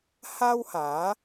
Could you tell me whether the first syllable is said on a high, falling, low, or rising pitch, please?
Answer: high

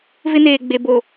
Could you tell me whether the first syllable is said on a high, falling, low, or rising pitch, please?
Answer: high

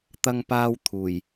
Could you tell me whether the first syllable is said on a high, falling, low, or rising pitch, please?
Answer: high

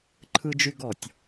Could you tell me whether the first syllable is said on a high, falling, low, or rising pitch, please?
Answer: high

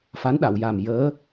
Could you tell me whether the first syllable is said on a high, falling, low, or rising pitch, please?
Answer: rising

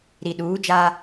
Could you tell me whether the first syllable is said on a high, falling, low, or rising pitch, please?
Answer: low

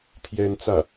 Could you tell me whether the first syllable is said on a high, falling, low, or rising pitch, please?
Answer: high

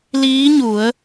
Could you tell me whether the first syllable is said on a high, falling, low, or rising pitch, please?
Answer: rising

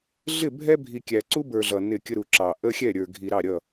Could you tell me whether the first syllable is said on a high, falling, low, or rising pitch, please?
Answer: falling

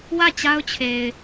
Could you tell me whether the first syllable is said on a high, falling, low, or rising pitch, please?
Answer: falling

